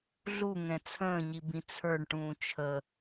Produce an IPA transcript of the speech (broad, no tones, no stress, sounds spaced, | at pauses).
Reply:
ɮ u ŋ ɛ̃ t͡sʰ ə̃ː ɲ i b ĩ t͡sʰ ə˞ ɳ ʈ ũː t͡ʃʰ ə